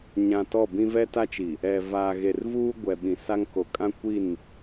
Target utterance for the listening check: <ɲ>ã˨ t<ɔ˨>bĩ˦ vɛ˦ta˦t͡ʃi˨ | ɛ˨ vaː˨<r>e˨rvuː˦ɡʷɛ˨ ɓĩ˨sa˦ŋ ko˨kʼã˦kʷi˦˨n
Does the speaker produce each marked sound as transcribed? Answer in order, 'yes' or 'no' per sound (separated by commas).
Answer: yes, no, no